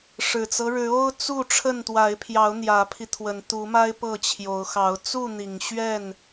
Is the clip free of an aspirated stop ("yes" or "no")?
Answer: no